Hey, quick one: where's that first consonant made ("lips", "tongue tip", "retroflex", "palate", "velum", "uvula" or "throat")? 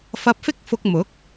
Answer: lips